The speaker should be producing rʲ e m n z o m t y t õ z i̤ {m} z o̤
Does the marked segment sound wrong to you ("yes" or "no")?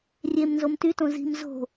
no